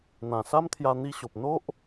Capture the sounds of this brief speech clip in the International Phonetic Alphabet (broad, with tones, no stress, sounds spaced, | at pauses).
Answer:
n̪ ã˨˩ s a˦ m t̪ʰ j a˧ n̪ i˧ ɕ o˨ p̚ n̪ o˦ ʔ